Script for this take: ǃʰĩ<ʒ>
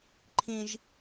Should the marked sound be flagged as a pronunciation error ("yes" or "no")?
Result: no